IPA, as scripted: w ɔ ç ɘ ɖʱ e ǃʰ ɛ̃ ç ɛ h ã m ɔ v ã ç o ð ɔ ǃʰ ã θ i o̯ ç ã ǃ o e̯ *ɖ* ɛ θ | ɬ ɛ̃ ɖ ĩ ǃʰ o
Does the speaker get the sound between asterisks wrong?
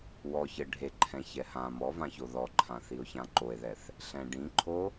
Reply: yes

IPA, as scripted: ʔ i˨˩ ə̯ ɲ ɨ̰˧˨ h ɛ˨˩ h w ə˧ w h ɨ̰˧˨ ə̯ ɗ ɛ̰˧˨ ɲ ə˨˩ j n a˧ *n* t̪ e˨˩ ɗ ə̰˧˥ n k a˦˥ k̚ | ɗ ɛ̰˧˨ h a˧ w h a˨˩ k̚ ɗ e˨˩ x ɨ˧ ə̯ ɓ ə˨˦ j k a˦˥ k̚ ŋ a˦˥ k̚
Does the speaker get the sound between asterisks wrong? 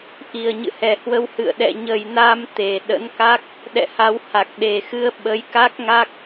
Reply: yes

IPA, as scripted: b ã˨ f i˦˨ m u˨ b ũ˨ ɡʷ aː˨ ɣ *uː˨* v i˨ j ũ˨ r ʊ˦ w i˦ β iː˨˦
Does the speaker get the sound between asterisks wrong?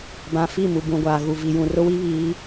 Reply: yes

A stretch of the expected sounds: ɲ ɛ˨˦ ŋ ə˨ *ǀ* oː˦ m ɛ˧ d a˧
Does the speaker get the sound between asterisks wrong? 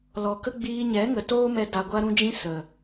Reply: yes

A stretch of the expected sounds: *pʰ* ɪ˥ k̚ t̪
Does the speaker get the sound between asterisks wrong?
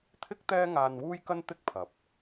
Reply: yes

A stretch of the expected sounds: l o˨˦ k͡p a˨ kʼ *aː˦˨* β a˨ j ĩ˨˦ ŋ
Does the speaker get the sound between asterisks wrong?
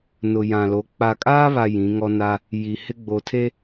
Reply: yes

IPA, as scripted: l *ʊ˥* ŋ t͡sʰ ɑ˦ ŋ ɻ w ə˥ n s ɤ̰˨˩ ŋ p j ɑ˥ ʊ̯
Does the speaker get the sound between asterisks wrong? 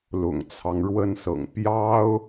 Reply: yes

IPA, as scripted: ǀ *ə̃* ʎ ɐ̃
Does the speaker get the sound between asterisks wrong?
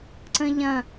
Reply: no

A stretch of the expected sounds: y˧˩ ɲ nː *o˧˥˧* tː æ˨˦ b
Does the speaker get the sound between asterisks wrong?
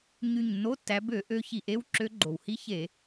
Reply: no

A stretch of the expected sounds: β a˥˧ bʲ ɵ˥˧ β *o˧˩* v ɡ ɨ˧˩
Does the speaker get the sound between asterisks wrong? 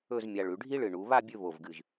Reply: no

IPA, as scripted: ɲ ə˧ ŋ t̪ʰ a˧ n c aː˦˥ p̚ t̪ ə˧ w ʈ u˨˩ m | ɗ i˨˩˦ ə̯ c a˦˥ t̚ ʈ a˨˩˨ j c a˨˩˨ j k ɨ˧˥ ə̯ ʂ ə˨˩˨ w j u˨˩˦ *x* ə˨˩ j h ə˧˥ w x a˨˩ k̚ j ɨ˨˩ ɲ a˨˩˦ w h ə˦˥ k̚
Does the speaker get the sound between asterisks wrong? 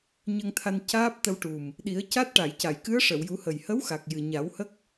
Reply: yes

